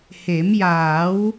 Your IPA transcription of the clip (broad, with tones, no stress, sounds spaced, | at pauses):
h e˨˩˦ m j aː˨˩˦ w